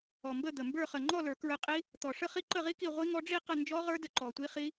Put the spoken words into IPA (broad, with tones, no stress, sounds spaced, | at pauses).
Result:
ɔ˨˩ m b ə˥˨ d̪ ə˨˩ m b ə˞˥˨ χ ə˨˩ ŋ͡ǃ ɔ˥˨ l ə˞˨˩˦ k ɹ ə˧ qʼ i˦˥ | t̪ ɔ˨˩ ʂ ə˥˨ χ i˥˨ ǃ ə˥˨ ʁ i˦˥ k i˥˨ ʁʷ i˦˥ ŋ ɔ˦˥ ɖ͡ʐ i˥˨ q ə˥˨ n d͡ʒ ɔ˦˥ ʁ ə˞˦˥ d ə˧ ǃ ɔ˨˩ tʷ i˦˥ χ i˦˥